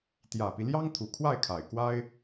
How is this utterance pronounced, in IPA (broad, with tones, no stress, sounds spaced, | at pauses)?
t̪ j ä˨˩ p i˦ l j ɑ˥ ŋ t̪ʰ u˨˩ kʰ w a˥˩ ɪ̯ kʰ a˨˩ ɪ̯ k w a˥ ɪ̯